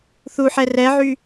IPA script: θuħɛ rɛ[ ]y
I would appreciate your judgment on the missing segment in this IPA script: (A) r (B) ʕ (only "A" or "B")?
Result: B